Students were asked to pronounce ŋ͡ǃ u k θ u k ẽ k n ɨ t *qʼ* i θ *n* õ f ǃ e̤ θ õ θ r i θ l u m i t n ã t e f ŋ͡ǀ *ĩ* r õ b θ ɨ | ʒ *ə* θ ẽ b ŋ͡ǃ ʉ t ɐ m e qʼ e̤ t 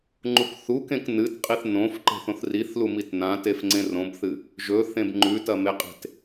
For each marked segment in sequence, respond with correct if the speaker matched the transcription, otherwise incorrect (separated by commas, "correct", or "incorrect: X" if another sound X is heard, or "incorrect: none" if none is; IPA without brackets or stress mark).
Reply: correct, correct, incorrect: ẽ, incorrect: ɵ